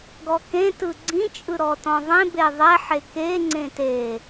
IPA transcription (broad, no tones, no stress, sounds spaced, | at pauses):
ɡ ɔ k ẽ t ɯ ɡ͡ǀ ĩ t͡ʃʼ ɯ ɾ ɔ t ɔ̃ ðˤ ẽ b e ðˤ ɛ ħ e k e ŋ͡ǀ ẽ t e